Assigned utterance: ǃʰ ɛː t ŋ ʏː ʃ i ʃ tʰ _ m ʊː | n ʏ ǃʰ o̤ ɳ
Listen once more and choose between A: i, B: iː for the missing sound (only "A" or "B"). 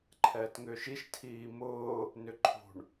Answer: B